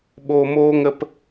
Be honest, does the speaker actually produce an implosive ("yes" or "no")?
yes